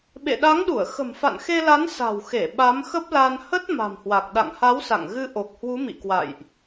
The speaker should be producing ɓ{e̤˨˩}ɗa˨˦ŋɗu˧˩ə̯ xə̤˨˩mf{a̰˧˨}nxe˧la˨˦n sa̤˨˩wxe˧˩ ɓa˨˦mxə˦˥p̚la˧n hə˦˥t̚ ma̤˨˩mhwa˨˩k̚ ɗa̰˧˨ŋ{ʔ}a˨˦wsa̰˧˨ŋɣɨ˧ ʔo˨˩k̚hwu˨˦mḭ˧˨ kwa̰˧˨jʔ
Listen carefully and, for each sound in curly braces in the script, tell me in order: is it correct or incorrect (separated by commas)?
incorrect, correct, incorrect